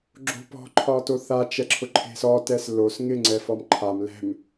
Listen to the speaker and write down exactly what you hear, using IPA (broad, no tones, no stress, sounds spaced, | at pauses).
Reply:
ɡ͡ǁ o̤ p ɔ̤ ǃʰ ɒ t o θ a t͡ʃ ɛ ǁʰ ʊ ǃʰ e̤ s ɔ t ɛ s l o s ŋ ɪ ŋ͡ǀ ɛ f ɔ m ǃʰ a m l ɛ̤ m